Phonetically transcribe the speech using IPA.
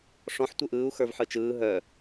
ʂ ɔ̃ ħ tʷ ɯ ʔ ɯː u̯ x ə˞ v ħ ɯ t͡ʃ ɯː ɦ œ

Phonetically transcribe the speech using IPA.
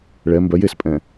ɭ ɛ m b œ j e s pʼ ɛ̃

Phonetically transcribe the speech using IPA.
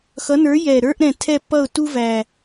x ʌ˨˥ n ə˞˨˥ j ɛ˨˩ ɾ ə˞˦ ʔ ɾ ɛ̃˨˩ tʰ ɛ˦˨ pː ʌ˦˨ ʊ̯ t u˦ v æ˨˩

